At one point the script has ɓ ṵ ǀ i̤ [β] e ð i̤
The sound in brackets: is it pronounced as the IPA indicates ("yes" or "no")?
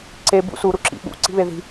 yes